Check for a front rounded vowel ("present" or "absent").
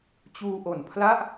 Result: absent